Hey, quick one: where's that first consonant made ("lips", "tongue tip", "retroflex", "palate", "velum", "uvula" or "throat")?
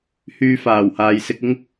throat